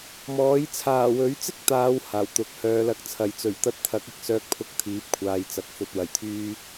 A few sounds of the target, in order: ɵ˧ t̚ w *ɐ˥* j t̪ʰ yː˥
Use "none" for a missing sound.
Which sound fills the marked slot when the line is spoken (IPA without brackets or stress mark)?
ɐ˨˩